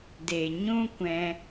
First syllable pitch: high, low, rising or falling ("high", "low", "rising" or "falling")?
low